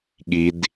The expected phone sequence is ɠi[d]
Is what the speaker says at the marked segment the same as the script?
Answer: yes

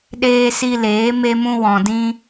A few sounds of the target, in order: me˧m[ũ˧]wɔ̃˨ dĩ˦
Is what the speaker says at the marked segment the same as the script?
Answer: yes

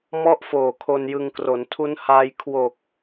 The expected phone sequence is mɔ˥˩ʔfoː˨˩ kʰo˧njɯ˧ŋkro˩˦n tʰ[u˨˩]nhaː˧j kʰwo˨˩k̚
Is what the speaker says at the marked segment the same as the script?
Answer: no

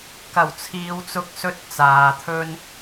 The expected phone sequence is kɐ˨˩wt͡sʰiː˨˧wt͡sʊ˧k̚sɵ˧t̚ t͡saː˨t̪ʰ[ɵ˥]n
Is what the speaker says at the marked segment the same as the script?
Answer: yes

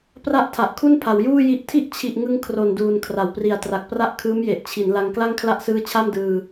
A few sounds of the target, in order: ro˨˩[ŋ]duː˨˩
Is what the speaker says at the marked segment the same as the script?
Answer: no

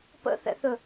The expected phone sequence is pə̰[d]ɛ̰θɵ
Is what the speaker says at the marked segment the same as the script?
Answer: no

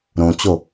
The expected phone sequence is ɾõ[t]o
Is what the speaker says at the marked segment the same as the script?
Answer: no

